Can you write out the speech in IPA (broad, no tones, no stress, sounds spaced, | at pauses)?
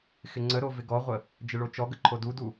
x ɪ ŋ͡ǀ ə ɾ o v ɪ ɡ ɔ ʁʷ ə | d͡ʒ ɪ ɭ o t͡ʃ ɔ ɡ ə ǃʰ o d u d u